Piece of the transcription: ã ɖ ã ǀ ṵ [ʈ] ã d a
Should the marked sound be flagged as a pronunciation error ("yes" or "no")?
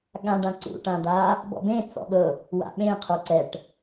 no